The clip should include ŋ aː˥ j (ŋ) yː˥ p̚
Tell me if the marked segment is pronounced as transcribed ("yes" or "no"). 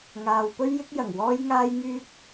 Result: yes